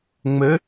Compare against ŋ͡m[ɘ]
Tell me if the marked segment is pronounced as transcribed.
yes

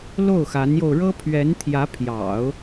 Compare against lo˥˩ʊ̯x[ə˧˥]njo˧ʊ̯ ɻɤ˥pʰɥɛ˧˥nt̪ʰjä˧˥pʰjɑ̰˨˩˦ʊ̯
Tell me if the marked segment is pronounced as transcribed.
no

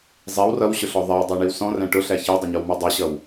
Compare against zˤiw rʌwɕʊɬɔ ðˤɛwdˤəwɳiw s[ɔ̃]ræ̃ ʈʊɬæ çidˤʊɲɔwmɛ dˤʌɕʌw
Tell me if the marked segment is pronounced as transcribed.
yes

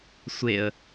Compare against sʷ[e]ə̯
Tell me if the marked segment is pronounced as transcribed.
yes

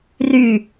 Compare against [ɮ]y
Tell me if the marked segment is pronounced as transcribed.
no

